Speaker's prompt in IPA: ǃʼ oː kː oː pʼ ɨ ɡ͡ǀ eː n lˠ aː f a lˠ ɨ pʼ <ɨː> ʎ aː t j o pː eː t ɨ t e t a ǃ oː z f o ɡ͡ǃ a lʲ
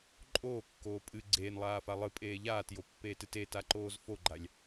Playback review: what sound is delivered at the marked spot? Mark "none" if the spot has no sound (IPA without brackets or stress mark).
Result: eː